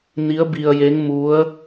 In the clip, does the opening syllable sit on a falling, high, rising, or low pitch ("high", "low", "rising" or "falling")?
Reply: rising